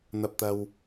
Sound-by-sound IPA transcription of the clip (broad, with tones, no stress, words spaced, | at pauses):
n̪ɐ˨p̚t̪ɐ˨w